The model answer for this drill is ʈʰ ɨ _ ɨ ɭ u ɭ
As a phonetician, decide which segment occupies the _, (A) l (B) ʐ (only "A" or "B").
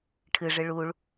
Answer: B